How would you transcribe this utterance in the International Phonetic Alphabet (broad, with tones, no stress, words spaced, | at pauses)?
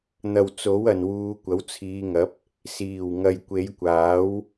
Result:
n̪ɐ˨wt͡so˨˥wɐ˨n wuː˨˧kʷɐ˨˥wt͡sʰiː˨˧ŋɐ˨˥p̚ | siː˨˩wŋɐ˨j kʷe˨˧jkʷaː˨˥w